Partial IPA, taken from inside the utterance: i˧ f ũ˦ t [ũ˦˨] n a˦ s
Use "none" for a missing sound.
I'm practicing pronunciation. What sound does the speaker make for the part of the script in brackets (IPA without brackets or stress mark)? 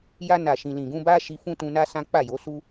ũ˧